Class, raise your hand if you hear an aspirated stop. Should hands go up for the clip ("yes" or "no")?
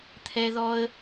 yes